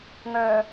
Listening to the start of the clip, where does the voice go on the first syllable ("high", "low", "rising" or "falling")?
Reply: low